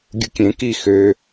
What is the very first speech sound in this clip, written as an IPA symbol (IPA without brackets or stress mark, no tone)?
ɡʲ